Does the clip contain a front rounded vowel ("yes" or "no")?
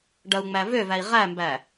yes